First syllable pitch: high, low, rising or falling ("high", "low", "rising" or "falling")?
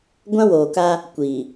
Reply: high